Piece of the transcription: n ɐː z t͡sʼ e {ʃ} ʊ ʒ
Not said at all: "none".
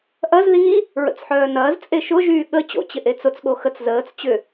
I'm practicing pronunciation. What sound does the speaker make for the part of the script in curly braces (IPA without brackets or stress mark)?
ʃ